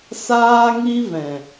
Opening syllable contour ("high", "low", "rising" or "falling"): high